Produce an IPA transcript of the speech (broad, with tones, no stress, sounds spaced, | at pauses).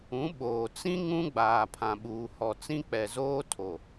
ũ˨˦ ɓ oː˨ t͡s ĩ˦ ŋ ũ˦ ɡ͡b aː˨ pʰ ã˨ ɓ uː˨ h ɔ˨ t͡s ĩ˦ k͡p ɛ˨ z oː˦ tʰ o˨